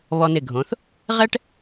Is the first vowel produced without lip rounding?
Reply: no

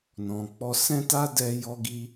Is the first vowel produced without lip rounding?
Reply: no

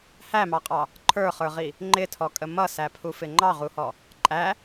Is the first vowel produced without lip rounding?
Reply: yes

